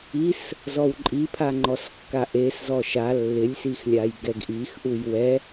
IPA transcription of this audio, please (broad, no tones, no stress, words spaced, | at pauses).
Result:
is | zɔwǃʼipʰaŋ͡ǃɔs kːaʔes zɔʃa lːɪlʲsixlʲaj ɡɛɡʔixʔuj wɛ